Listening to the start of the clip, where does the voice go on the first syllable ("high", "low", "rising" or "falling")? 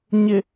low